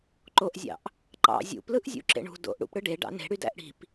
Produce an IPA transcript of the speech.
ǃ o ʔ zʲ ɑ̰ ʔ | ǃ ɑ̰ zʲ ṵ p l ɯ ʔ zʲ ṵ ǁ ḛ ɳ ṳ d o̰ ʔ ɽ ṵ p ɽ ɯ ɖ e ɖ ɑ̰ n e̤ ɽ y d æ̰ ʔ ɽ i̤ p

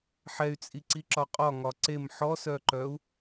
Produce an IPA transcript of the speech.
ħ ɛ y̯ t͡sʼ i ǀ i ǁ ɒ qʼ ɒ ŋ ɒ ǀ e m ħ ɔ s œ ǃ œ u̯

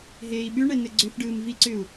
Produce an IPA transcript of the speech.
ɦ eː i̯ ɓ ʉ ɳ ɛ n ɘ ɡ͡ǀ ʏ f ɖ ɯː m v i ǀ ʏ u̯

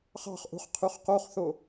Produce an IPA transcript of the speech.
χ ɑ̤ χ ʔ ṳ χ qʰ y χ q o χ θ o

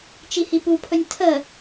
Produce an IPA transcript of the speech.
t͡ʃ i h i p u pʰ ɵ nʲ tʰ ə

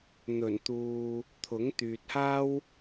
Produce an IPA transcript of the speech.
n̪ ɵ˨˩ n t̪ uː˨ | t̪ʰ ʊ˨˥ ŋ t̪ yː˨ t̚ h aː˥ w

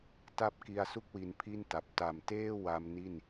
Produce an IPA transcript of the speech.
t a˥˩ p̚ k i˧ a̯ s u˥˩ k̚ w i˧ n pʰ i˥˩ n t a˨˩ p̚ t a˨˩ m t eː˥˩ w a˧ m n i˥˩ n

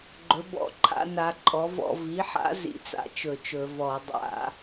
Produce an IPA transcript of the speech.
ɡ͡ǃ ɵ˩˥ b ɔ̰˧˩˧ ǃʰ a̰˩˥ n a˩˥ ǃʼ ɔ˩˥ v ɔ̰˧˩˧ v i˩˥ ħ a̰˩˥ z ḭ˧˩˧ t͡s a̰˩˥ t͡ʃ ɵ˧˩˧ t͡ʃ ɵ˧˩˧ v ɔ˧˩˧ dˤ a̰˧˩˧

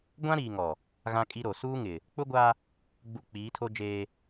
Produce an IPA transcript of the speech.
ɡʷ ã˦ ɾ iː˨ ŋ ɔ˨ | ɣ ã˦ kʼ i˦ ɾ o˨ s uː˦ ŋ ɪ˨ | k͡p ʊ˦ ɡʷ a˦ | ɡ͡b u˨ k͡p iː˨˦ tʰ o˦ d͡ʒ eː˦

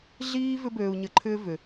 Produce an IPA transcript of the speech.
ɮ iː˦ v ʏ˦ b øː˧ u̯ ɲ ə˧ ǃʰ ʏː˦ v ʏ˧

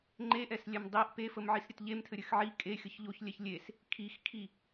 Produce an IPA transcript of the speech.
ŋ͡ǃ e ʔ ɛ s lʲ ɛ m dˤ i ʔ p e f ə m ʕ i s ɾʲ ɘ t ʎ e m tʰ ɘ ɾʲ ɘ x ʕ i kʼ e xʲ ə ç ʎ o ç lʲ ɛ ç lʲ e s | kʰ i x kʰ i

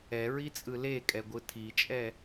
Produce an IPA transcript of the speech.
ɛ ɹ i t͡sʼ ɯ l e kʼ ɛ ɡʷ ɯ tʰ i t͡ʃʼ ɛ

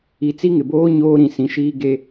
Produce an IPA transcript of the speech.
i˨ t͡s i˦ ŋ ɪ˨ b oː˦ ɲ oː˦ ɾ ĩ˨ s ĩ˨ ʃ iː˦ ɡ e˦

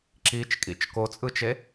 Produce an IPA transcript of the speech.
ǁ i t͡ʃ kʼ ḭ t͡ʃ k o t͡sʼ ɯ t͡ʃ e

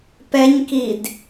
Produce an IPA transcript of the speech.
p ɛ ɲ k i d

